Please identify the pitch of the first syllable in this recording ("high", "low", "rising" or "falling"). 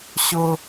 high